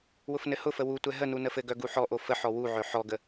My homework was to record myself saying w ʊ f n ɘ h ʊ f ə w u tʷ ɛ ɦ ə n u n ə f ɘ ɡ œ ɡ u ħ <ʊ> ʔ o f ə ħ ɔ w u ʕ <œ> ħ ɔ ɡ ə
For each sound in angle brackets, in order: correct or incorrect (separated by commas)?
incorrect, correct